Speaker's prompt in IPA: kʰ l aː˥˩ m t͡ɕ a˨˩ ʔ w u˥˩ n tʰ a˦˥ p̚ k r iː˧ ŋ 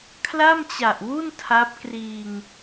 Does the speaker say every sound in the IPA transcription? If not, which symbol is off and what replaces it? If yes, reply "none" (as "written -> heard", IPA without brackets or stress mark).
aː˥˩ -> a˥˩